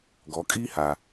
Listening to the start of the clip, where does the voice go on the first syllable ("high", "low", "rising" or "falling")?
rising